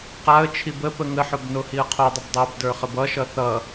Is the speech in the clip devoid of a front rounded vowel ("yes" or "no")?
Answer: yes